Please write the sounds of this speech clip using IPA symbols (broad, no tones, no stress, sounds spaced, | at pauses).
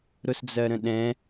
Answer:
ɾ ʊ s d͡z ɜ ɾ ə̃ ɗ ɛ̃